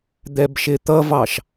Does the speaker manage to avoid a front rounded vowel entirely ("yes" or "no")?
yes